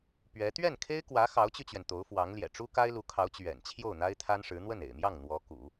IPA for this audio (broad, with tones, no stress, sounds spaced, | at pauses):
p ɥ ɛ˧˥ t̪ ɥ ɛ˥˩ n kʰ e˥ ɪ̯ k w ä˧˥ x ɑ˧˥ ʊ̯ t͡ɕ y˧ t͡ɕ ɥ ɛ˩ n t̪ o˧˥ ʊ̯ f w ɑ˧˥ ŋ l j ɛ̰˨˩ ʈ͡ʂ u˥ k a˥ ɪ̯ l u˧˥ kʰ ɑ˧˥ ʊ̯ t͡ɕ ɥ ɛ̰˨˩ n t͡ɕʰ j o˥˩ ʊ̯ n̪ a˥ ɪ̯ t̪ʰ a˥ n ʂ ɻ̩˧˥ n̪ w ə˥˩ n ḛ˨˩ ɪ̯ m j ɑ˥˩ ŋ n̪ w ɔ˧˥ k ṵ˨˩˦